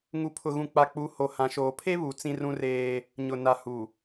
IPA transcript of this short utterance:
ŋ u˨ pʰ ʊ˨ ɣ ũ˨ k͡p a˨ k͡p u˨˦ h o˨ h ã˨ ʃ oː˨ pʰ e˦ β u˨ t͡s ĩ˦ r ũ˦ r eː˦ | ɲ ʊ˨ n a˨ h u˨

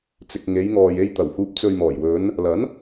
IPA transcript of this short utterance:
t͡s ɪ˨ k̚ ŋ e˨˧ j ŋ ɔː˨ j e˧ j t̪ ɐ˨˩ w h uː˨ p̚ t͡s ɵ˨ ɥ m ɔː˨˩ j w ɵ˨˧ n | l ɐ˨˥ n

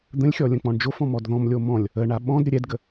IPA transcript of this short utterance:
d̪ ə̃ lʲ xʲ ɔ lʲ ə̃ k͡p ɔ̃ ɳ d͡ʒ o f ɔ̃ m ɔ d ð ɔ̃ m lʲ o m ɔ̃ lʲ | ə ɳ a ɓ ɔ̃ d ɾʲ ə ɾʲ ɛ d ɡ ə

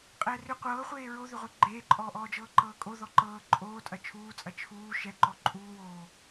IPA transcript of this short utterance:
qʼ ɛː r ʏ qʷ ɤː χʷ eː ɹ o ð ʏ ʁʷ e ɡ͡ǃ eː ǃʼ ɔː ʔ ɔː d͡ʒ ɤː ǃ ɤː kʼ o ð ɔ ǃ ɤː ǃʼ oː tʼ ɐ t͡ʃʰ uː t͡sʼ ɐ t͡ʃʰ uː ʃ ɛ ǃ ɔ ǃʼ uː w oː

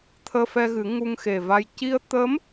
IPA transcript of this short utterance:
t̪ʰ əː˧ f ɛ˧ ɣ ɨ˨˩˦ ŋ u˧ ŋ x e˨˩ v a˧ j c i˧ ə̯ t̪ ə˧˥ m

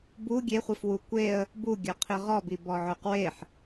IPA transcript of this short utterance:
b u ɡʲ e χʷ i f w u kʷ e ə̯ | b u ɡʲ œ qʰ i ʁ ɔ b i b ɔ ʕ ø q w e ħ

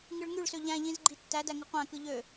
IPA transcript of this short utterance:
ŋ ɯ ɭ ŋ y ɭ s ø ʎ æ̃ ʎ ĩ z ɡ͡ǃ i tː æ d æ ŋ ɯ qʷ æ̃ k ɯ ʎ ø

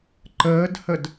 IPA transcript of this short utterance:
ǃ əː d h ə d

